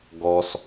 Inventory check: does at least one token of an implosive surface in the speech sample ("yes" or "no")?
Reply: no